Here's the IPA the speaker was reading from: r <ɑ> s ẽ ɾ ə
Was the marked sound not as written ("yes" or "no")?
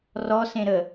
yes